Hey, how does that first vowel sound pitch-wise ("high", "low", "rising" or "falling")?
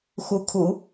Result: rising